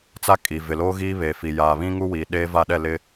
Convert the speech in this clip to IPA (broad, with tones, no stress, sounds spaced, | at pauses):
t͡s a˦ kʼ i˨ v ɪ˨ l oː˦ ɣ iː˦ β eː˨ f i˨ j aː˨ β ĩ˦ ŋ u˦ w iː˨ ɗ eː˦ v a˦˨ ɗ ɛ˦˨ l ɪ˦